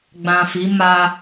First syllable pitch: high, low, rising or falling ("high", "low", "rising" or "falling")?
low